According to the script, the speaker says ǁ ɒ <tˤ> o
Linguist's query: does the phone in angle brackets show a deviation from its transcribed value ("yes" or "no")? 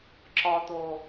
yes